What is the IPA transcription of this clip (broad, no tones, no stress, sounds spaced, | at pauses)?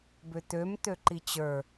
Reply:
b ʏ t̪ ø m t̪ ø ǃ i t͡ɕ ə˞